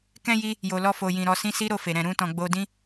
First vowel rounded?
no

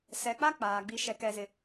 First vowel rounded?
no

